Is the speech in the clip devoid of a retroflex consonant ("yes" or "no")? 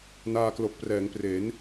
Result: yes